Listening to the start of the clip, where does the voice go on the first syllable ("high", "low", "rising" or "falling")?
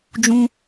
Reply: high